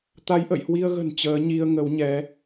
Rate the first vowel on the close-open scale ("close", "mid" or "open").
open